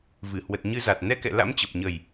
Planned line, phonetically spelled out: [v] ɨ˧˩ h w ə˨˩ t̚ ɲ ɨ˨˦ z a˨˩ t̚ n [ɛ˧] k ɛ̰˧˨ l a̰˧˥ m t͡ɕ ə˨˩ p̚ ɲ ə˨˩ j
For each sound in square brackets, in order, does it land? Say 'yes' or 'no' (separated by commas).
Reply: yes, yes